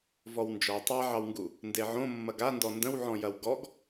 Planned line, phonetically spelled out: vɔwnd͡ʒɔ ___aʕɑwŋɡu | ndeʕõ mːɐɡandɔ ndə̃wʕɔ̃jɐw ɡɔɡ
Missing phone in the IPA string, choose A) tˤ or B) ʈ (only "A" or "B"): A